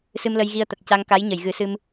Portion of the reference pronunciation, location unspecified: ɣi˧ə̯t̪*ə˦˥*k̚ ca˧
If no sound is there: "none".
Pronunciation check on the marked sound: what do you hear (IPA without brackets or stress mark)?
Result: ə˨˩